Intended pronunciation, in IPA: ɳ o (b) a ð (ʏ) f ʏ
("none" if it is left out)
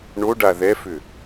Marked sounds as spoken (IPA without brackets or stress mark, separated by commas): ɖ, ɛ